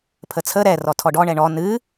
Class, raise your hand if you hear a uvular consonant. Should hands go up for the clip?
no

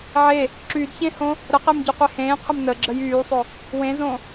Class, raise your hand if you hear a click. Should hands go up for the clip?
yes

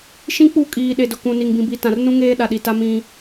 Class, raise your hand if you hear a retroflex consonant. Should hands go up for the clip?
no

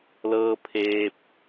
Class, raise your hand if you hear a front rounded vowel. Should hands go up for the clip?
no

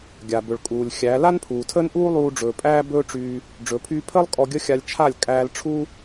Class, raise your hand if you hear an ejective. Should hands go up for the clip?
yes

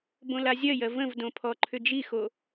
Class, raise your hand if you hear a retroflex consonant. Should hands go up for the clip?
no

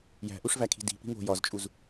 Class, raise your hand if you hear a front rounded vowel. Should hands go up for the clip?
no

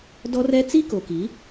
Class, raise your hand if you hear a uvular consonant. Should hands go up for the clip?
no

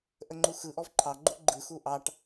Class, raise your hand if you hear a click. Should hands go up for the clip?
yes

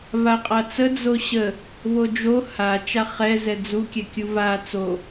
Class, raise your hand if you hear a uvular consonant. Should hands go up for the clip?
yes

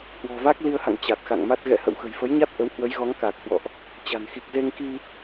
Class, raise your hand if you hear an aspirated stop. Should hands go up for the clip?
no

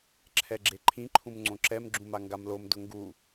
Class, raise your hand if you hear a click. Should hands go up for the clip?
yes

